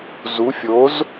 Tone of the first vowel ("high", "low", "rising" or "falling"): rising